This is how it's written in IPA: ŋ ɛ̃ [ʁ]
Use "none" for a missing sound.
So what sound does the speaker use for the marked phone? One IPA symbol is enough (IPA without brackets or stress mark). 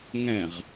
ʁ